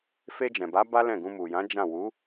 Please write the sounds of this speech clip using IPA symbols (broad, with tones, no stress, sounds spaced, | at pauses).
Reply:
f e˧ d͡ʒ ɛ̃˨ b a˨˦ b a˦ l ɛ̃˦˨ ɡ ũ˧ m u˨ j ã˨˦ d͡ʒ ã˦˨ w u˨˦